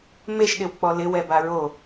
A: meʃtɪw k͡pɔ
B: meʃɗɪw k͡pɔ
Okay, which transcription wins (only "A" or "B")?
B